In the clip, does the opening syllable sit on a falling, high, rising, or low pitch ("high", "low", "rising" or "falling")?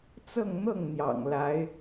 falling